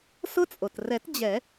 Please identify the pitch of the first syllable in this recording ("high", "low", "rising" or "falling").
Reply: high